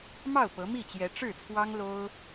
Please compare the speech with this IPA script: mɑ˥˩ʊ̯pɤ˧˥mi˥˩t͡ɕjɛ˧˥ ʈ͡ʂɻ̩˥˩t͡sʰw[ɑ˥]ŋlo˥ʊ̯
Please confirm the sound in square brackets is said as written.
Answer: yes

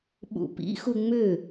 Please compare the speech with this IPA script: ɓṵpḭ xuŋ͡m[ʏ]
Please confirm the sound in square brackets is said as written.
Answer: yes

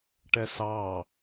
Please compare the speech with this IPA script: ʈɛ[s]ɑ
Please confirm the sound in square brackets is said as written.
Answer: yes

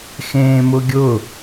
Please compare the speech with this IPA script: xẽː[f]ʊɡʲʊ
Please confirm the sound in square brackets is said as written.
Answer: no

